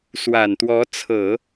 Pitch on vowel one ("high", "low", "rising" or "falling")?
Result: low